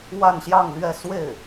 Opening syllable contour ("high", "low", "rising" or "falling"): falling